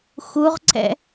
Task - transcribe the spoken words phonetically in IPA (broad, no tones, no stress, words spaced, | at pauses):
xuʁǀɛ̰